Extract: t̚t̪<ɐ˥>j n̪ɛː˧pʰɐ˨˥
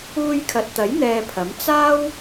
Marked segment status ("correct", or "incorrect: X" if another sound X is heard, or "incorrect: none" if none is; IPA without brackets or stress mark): incorrect: ɐ˨˥